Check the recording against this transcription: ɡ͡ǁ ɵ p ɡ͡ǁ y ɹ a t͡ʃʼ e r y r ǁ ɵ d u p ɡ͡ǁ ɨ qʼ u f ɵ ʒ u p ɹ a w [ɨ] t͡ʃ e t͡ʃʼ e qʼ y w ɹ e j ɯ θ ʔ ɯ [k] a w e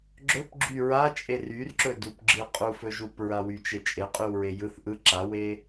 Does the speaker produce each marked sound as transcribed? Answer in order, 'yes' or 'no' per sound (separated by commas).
no, no